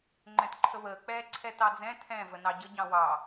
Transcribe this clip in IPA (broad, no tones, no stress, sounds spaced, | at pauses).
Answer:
ŋ͡ǃ ɛ̃ t ǃʰ ə β əː k͡p ɛː ǀʰ ɛ t ɑ d͡z ɛ̃ tʰ ɛ̃ v ə n ɑ ɟ ə ɟ ɑ̃ w ɑ